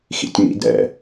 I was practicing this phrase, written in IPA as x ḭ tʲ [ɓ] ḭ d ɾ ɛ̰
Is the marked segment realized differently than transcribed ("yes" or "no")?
yes